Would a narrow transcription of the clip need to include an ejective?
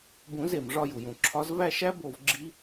no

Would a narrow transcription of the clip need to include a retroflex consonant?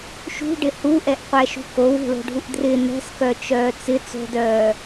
yes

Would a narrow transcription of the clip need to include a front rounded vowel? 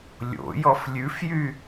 yes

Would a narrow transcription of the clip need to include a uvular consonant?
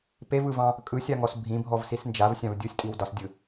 no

